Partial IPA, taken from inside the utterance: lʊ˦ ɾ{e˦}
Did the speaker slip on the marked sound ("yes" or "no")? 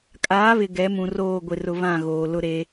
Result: no